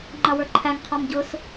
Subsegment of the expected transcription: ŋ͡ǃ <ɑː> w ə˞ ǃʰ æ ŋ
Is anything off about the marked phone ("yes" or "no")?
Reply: yes